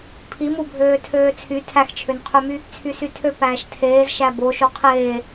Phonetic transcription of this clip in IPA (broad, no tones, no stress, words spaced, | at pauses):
pʰimubʱøː tʰøːt͡sʰy tʰæxt͡ʃʰønqʰømy | t͡sʰysytʰø pæːʃtʰeːz ʃæbo ʃoqʰeː